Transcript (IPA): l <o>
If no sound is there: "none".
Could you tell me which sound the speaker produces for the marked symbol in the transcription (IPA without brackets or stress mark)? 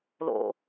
o̰